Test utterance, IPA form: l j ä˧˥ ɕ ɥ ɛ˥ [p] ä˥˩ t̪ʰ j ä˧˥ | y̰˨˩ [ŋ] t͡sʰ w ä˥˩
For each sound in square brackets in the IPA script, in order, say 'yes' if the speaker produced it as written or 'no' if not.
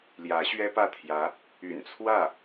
yes, no

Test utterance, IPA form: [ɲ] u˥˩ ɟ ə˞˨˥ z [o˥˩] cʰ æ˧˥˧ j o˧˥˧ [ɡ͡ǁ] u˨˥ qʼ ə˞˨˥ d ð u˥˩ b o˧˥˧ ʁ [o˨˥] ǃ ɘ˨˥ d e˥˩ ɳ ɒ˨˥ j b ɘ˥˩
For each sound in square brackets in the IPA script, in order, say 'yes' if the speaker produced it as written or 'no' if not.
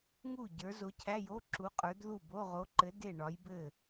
no, no, no, yes

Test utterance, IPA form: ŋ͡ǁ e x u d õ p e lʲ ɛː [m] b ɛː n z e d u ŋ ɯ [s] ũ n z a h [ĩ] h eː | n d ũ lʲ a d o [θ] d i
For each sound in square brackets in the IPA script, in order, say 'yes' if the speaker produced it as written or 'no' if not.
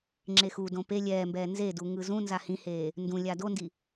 yes, no, yes, no

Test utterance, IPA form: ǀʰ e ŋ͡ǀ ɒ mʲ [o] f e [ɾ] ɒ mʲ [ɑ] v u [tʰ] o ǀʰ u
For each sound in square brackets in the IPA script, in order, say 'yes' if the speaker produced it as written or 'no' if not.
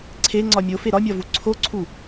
yes, yes, no, no

